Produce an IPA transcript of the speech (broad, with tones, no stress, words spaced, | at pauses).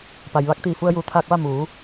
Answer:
pa˩jʋa˧˥k̚t̪iː˧˩ fu˧ə̯juː˩t̪ʰaː˧k̚ʋa˥˨ muː˩˧